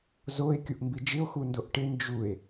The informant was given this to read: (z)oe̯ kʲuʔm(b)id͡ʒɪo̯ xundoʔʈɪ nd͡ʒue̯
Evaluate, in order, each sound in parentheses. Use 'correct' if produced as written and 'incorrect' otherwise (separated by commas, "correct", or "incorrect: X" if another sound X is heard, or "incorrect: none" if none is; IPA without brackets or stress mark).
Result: correct, correct